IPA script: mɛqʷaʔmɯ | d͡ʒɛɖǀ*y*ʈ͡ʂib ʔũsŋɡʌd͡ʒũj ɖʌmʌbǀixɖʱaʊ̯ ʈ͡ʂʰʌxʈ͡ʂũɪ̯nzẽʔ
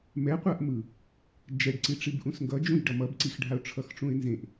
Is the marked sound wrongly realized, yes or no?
yes